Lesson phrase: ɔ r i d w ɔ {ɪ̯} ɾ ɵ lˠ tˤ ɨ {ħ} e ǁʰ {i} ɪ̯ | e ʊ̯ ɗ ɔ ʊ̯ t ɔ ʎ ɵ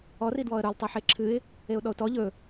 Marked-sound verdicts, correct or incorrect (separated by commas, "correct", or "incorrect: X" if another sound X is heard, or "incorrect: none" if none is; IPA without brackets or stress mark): incorrect: ə̯, correct, incorrect: ɨ